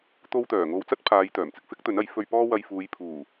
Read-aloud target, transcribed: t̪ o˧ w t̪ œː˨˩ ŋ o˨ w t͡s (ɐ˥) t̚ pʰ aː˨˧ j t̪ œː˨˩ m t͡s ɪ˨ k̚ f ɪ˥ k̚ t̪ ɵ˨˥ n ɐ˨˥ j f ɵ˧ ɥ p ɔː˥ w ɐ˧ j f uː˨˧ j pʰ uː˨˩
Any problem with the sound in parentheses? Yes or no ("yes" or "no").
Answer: no